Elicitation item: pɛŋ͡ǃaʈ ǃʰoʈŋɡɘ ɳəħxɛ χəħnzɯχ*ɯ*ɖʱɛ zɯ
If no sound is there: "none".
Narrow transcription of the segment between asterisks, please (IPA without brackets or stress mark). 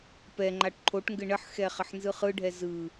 ɯ